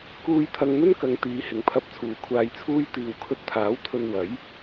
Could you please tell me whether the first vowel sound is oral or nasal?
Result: oral